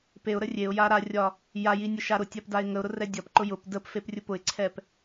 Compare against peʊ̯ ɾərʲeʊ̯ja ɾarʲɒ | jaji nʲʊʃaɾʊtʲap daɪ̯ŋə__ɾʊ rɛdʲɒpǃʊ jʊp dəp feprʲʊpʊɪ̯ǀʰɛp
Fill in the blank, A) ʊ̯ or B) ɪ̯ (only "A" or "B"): A